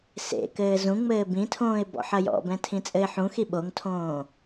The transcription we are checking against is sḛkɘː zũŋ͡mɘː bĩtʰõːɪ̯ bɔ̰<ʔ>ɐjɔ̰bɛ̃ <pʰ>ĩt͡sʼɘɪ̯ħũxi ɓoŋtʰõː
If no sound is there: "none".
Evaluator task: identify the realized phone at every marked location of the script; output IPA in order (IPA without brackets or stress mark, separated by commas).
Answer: ħ, tʰ